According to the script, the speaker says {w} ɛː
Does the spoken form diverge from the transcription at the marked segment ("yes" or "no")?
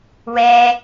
no